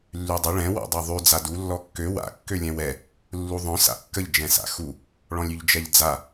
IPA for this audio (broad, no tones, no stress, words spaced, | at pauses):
lːydˤə ɭɛ̃ wɔ̰dˤœðˤy d͡zadu lːɔkːø wa̰ kːølʲɛ̃wɛ | lːuðˤœ̃ sa̰kːəʎ d͡ʒɛ̃sa̰xu | ɭɔ̃lʲyʎd͡ʒɛʎd͡za